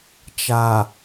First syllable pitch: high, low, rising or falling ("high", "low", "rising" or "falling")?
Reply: low